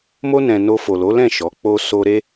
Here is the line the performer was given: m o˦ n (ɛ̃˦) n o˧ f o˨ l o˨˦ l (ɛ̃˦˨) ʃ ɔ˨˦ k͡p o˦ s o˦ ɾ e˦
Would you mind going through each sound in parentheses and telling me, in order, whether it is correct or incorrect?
incorrect, correct

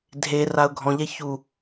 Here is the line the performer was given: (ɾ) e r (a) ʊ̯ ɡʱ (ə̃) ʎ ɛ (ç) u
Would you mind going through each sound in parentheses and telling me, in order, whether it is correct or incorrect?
incorrect, correct, incorrect, correct

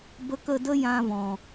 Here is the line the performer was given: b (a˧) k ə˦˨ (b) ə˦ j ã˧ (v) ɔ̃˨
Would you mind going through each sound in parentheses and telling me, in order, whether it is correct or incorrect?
incorrect, incorrect, correct

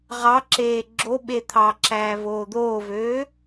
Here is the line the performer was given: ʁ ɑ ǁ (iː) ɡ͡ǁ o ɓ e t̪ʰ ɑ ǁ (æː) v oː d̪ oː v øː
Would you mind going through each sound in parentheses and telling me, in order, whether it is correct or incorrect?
incorrect, correct

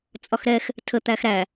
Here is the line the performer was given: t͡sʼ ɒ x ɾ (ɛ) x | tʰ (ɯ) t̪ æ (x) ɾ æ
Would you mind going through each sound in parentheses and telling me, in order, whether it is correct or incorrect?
correct, incorrect, correct

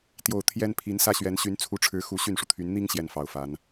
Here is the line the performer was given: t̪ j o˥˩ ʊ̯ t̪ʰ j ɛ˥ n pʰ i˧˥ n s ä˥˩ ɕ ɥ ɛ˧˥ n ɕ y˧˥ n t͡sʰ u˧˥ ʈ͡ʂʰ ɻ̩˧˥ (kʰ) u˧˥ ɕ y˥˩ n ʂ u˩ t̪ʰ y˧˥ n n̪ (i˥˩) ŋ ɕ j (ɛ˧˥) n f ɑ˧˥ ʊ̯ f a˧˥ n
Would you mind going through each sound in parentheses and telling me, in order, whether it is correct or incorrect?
incorrect, incorrect, incorrect

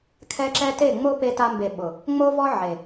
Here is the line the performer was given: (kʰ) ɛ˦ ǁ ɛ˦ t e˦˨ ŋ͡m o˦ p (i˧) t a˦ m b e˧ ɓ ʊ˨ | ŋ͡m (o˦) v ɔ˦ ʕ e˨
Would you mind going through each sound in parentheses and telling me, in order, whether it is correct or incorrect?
correct, incorrect, correct

